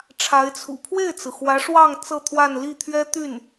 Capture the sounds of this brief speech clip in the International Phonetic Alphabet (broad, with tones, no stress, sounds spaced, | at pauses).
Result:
ʈ͡ʂʰ a˧˥ ɪ̯ t͡sʰ ṵ˨˩ pʰ w e˥˩ ɪ̯ t͡s ɹ̩˩ x w ä˧˥ ʂ w ɑ˥˧ ŋ t͡s ɤ˥˧ t̪ʰ w a˥˧ n l i˥˩ t̪ʰ ɥ ɛ˥ t̪ y˥˩ n